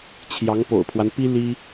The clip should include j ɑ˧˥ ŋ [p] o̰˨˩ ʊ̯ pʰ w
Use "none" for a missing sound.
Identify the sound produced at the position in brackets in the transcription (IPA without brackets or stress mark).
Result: p